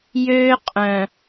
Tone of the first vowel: high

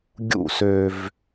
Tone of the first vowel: falling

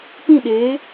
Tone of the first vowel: falling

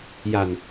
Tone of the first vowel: low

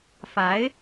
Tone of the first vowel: rising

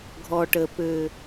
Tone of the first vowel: low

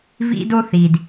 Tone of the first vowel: high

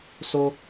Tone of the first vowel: high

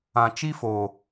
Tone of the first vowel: low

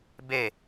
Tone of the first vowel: falling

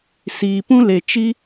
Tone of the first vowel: low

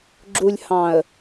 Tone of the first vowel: low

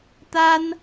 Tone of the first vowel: high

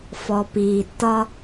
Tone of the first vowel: low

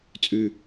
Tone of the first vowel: low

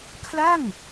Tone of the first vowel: falling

